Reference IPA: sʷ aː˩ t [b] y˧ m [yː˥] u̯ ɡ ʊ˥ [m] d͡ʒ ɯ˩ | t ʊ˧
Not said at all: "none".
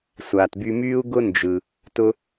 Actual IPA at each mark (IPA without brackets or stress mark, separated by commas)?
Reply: b, yː˥, n